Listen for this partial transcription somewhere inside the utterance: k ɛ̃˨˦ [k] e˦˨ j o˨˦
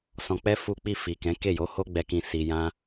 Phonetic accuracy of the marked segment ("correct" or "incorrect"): correct